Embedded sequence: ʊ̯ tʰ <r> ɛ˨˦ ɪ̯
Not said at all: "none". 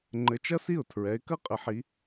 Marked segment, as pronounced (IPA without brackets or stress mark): ɹ